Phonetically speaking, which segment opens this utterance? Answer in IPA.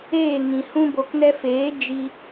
eː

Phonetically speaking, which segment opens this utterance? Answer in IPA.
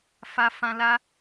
f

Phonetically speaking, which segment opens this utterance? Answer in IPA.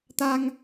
t̪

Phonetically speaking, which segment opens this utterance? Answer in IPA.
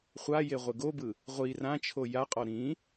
χʷ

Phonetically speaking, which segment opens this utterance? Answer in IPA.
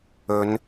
ɵ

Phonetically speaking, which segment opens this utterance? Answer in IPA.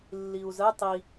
lː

